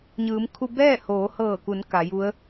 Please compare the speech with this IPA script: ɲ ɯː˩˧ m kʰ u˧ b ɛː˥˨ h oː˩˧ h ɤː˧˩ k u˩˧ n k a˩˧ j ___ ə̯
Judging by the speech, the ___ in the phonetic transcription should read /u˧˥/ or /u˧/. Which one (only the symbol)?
u˧˥